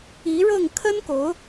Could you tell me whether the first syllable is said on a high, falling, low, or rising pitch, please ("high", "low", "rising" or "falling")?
rising